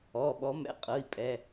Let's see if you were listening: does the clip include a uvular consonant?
yes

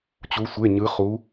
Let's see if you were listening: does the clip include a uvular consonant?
yes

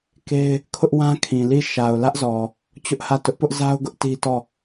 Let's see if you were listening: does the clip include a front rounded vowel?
no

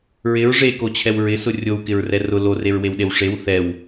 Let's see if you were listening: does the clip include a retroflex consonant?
yes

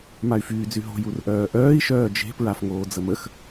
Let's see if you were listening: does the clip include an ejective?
no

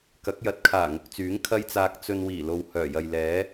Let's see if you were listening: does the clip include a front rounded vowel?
yes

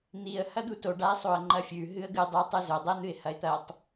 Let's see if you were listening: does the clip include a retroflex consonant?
yes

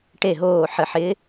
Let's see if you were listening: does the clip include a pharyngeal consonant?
yes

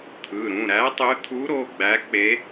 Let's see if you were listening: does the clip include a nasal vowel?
yes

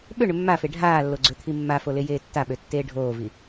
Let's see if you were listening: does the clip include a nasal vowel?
no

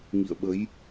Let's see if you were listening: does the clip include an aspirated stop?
no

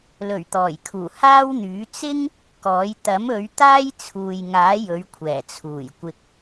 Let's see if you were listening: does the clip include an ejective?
no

